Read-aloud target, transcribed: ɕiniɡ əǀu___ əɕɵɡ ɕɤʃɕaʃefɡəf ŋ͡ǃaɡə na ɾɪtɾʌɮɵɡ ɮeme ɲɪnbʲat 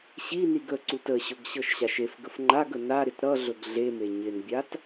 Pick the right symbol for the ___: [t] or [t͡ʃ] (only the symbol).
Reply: t